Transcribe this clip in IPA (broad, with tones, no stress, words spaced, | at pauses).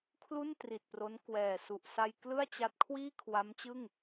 kʰlu˥˩ntri˨˩t̚ pro˦˥n kwɛː˨˩ su˨˩ʔsa˧j klɯ˥˩a̯t͡ɕa˦˥t̚kʰwiː˥˩ kʰwa˦˥mt͡ɕɯ˥˩ŋ